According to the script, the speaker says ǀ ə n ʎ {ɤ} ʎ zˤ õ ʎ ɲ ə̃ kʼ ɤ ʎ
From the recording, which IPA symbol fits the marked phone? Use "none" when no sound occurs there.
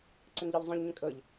ɤ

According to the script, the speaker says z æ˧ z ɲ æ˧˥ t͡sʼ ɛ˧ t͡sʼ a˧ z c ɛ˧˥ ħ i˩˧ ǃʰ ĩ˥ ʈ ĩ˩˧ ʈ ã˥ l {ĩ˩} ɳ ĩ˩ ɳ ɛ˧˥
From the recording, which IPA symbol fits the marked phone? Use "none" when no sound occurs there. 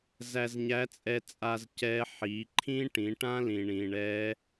ĩ˩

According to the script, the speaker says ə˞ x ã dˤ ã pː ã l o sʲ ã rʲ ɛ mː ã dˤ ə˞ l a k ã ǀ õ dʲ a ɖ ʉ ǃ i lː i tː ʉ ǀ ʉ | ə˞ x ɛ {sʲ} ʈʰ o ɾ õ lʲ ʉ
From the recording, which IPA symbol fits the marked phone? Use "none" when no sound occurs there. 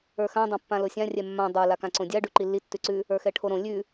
none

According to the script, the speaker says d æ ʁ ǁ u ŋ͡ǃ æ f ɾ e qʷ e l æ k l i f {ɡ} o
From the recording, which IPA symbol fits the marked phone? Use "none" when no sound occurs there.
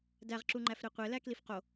q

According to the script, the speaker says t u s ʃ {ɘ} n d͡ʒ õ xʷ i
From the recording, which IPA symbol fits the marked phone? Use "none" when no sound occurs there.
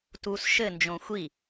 ɘ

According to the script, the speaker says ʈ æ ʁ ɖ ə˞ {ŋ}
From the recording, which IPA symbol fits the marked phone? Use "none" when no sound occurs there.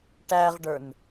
n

